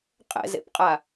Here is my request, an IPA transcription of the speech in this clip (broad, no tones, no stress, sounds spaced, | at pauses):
qʼ ɛ̰ z ḛ p qʼ a